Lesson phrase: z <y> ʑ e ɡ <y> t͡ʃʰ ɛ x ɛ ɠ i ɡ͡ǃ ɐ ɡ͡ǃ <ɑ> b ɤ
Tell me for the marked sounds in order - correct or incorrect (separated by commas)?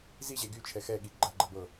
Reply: incorrect, correct, incorrect